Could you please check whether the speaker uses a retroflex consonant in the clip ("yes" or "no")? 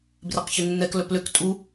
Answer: no